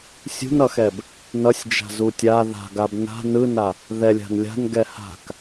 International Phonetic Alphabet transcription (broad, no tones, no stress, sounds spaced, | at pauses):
sʲ ṳ n ʌ x ɛ b | n ʌ sʲ d͡ʒ a̤ z u tʲ a ð a̤ ɡ a b n a̤ n ɯ n a | ð ɛ lʲ a̤ n lʲ a̤ n ɡ ɛ h a̤ k